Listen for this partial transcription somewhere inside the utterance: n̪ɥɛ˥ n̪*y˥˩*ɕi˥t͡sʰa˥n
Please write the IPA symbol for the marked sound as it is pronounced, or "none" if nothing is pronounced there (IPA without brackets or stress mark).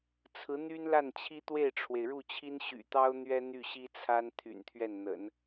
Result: y˥˩